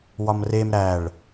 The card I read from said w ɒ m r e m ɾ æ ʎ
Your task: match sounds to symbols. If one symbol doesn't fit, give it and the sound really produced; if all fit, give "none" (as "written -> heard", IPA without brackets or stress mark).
ʎ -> ɭ